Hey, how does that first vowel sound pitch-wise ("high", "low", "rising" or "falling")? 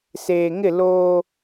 low